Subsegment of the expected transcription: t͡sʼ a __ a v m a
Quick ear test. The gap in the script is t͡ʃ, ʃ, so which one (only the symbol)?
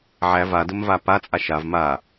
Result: ʃ